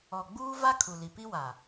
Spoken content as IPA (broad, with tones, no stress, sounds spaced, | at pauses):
ɔ˨ ɡ͡b uː˦ v a˦ kʰ u˨ l i˨ p i˦ w a˨